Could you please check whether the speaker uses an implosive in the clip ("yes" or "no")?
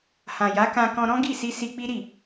no